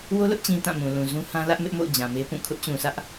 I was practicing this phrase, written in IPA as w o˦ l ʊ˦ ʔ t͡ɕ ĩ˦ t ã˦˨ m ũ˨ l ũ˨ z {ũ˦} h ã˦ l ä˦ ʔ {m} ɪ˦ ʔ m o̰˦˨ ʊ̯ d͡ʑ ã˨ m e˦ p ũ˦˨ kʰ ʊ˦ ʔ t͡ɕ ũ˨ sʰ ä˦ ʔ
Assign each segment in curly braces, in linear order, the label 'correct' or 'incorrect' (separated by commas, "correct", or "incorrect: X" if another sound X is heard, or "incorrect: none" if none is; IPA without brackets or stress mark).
correct, correct